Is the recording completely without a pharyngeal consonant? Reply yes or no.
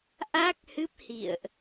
yes